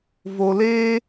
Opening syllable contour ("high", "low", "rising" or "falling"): low